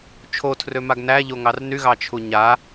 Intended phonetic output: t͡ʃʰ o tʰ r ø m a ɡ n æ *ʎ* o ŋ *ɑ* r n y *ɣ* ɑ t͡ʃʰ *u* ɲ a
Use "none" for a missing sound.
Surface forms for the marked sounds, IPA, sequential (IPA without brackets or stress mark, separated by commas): ʎ, ɑ, ɣ, u